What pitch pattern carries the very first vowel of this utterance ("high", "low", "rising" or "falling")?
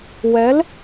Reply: rising